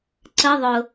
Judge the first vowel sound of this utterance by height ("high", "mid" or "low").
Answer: mid